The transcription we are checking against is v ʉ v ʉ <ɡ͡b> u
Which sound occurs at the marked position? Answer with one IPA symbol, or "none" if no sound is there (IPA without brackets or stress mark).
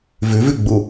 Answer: ɡ͡b